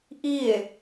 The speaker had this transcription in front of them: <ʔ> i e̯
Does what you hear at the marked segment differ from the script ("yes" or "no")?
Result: no